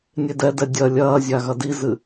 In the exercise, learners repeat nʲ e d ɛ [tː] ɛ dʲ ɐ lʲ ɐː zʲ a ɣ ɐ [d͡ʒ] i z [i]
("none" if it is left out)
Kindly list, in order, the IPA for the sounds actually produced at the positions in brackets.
d, d, ɨ

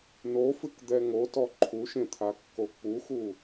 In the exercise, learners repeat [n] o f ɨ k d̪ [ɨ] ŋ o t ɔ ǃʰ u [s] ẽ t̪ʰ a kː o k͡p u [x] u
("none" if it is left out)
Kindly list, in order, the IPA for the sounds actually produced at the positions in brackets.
n, ɛ, ʃ, x

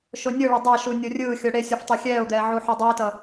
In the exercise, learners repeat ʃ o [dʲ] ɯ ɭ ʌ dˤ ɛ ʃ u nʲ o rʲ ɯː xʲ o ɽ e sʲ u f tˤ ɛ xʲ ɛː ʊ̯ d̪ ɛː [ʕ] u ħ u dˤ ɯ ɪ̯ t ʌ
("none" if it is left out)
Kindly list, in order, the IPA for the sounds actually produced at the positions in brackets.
nʲ, ʕ

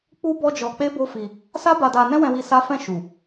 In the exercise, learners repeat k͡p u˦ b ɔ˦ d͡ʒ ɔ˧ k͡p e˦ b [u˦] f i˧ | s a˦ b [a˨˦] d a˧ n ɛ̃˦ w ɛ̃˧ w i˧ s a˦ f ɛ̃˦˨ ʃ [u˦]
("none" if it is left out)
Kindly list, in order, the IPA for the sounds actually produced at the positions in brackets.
o˦, a˧, u˨

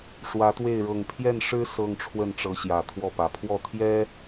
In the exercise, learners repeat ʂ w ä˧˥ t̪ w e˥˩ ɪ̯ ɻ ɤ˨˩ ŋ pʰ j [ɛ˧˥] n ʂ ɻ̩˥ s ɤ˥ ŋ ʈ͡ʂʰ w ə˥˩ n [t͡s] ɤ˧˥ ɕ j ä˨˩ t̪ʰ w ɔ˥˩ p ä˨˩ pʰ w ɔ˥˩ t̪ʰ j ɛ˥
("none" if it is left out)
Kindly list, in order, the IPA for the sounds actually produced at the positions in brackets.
ɛ˥˩, ʈ͡ʂ

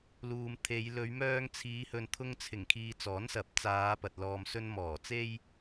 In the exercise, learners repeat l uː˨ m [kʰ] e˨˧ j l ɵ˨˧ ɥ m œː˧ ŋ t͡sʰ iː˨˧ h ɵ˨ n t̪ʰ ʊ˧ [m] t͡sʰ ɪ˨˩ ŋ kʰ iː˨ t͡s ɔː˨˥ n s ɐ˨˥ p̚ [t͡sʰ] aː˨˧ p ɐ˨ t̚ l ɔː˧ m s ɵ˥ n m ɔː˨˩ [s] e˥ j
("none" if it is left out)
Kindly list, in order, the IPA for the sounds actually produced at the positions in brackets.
t̪ʰ, ŋ, t͡s, t͡s

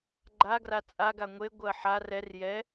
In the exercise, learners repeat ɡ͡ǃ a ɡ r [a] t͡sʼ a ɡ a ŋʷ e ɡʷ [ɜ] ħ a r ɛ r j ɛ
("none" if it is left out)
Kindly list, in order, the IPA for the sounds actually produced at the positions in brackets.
a, ɜ

